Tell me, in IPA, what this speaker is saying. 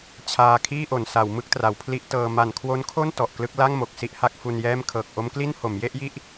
t͡ɕʰ aː˧ kʰ iː˥˩ ʔ o˩˦ n s a˩˦ w m ɯ˦˥ k̚ t r a˩˦ w pʰ l i˦˥ ʔ t ɤː˧ m a˨˩ n kʰ w o˦˥ n kʰ o˥˩ n t ɔ˨˩ ʔ k l ɯ˥˩ k̚ l a˥˩ ŋ m o˨˩ k̚ s i˥˩ ʔ h a˦˥ k̚ f u˧ n j ɛː˥˩ m kʰ ɤː˨˩ k̚ ʔ o˦˥ m k l i˥˩ n h o˩˦ m j e˥˩ ʔ j i˥˩ ʔ

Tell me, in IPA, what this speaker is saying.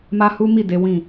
m a˦ h u˦ m i˦˨ d e˨˦ w ĩ˦˨

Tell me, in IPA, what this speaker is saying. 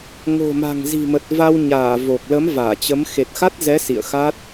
ŋ o̤˨˩ m a̤˨˩ ŋ z i̤˨˩ m ə˨˩ t̚ v a˧ w ɲ aː˧˩ v o˨˩ k̚ l ə˨˦ m v aː˧˩ t͡ɕ ə˨˦ m x e˨˩ t̚ x a˦˥ t̚ z ɛ˨˦ s ḭ˧˨ ə̯ x a˦˥ t̚

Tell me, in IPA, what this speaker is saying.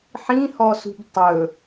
ħ ĩ h ɔ s ṳ b tˤ ɵ

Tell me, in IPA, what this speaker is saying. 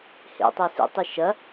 h ḛ tˤ ø s ḭ tˤ i ʃ ɐ

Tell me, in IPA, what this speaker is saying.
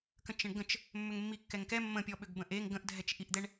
k ə̃ t͡ʃ ə̃ ɳ ɡ ə̃ t͡ʃ | mː ʏ ŋ mː i kː ɛ ŋ k ɛ mː ə̃ pʲ ɔ ɓ ʏ ɡ b ə̃ ʔ e ŋ ɡ ə̃ ʔ dʱ ɛ t͡ʃ ʔ i ʔ d̪ ɛ ɳ

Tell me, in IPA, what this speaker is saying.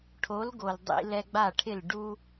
ʈʰ o˩˥ l ɡ o˩ l dˤ ḭ˧ l ɛ˧ ɡ͡b a˥˩ ʈʰ ɪ˥˩ l ɖ u˥

